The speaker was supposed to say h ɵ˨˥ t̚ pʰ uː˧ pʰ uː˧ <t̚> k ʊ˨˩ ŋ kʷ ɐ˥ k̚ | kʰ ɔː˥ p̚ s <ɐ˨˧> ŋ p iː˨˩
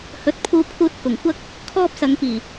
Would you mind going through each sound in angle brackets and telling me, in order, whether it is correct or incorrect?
correct, correct

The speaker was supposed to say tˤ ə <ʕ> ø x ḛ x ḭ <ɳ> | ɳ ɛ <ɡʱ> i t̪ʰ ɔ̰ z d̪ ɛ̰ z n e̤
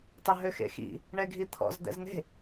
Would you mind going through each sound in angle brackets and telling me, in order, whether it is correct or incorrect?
incorrect: ɦ, incorrect: none, correct

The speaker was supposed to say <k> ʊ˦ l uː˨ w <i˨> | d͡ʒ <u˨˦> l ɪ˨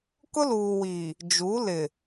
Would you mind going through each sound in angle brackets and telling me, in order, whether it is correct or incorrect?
correct, correct, correct

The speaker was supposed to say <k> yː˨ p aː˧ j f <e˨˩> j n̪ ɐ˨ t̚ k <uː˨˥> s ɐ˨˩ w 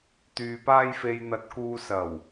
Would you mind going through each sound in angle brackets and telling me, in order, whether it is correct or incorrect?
incorrect: t̪, incorrect: e˨, incorrect: uː˨

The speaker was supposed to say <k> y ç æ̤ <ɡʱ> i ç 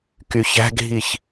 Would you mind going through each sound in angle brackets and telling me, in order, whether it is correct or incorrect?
correct, correct

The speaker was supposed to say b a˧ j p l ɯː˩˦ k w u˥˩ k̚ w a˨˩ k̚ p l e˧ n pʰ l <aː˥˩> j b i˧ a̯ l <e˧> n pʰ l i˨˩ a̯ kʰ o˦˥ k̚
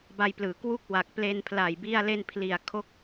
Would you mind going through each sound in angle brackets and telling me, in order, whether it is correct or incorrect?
incorrect: aː˨˩, correct

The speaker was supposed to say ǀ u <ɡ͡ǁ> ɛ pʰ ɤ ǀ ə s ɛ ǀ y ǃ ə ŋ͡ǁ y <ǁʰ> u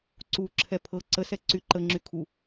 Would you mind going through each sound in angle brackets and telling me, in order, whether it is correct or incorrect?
incorrect: ǁʰ, incorrect: kʰ

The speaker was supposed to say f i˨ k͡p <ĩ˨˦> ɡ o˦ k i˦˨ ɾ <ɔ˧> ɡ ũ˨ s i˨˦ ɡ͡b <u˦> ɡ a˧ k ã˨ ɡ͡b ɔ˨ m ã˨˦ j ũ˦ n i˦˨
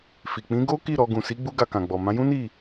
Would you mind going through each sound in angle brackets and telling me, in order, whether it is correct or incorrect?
correct, correct, correct

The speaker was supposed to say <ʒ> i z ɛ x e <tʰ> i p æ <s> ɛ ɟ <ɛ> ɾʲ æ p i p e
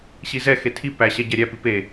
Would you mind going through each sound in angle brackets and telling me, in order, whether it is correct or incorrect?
incorrect: ɕ, correct, incorrect: ɕ, incorrect: æ

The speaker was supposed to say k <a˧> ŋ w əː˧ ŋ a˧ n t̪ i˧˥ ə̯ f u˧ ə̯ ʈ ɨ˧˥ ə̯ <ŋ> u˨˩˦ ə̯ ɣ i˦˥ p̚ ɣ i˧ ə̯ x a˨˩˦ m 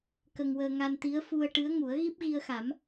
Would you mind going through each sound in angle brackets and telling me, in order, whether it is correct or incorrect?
incorrect: ə˧, correct

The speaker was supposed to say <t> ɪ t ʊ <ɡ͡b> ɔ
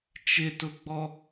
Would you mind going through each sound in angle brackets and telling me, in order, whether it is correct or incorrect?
incorrect: t͡ʃ, correct

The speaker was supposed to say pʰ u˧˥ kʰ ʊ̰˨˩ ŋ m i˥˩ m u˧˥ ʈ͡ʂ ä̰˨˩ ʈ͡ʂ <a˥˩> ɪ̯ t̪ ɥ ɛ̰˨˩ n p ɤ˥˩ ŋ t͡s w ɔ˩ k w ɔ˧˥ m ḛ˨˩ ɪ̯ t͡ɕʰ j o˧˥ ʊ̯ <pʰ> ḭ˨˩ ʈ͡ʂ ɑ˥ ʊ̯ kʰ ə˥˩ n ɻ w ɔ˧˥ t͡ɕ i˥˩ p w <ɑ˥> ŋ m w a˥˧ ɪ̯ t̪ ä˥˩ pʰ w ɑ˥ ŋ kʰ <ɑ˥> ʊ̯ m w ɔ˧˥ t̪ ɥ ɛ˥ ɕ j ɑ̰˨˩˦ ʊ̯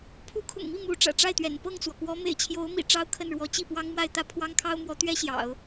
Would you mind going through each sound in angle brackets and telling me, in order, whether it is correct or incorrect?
correct, incorrect: m, correct, correct

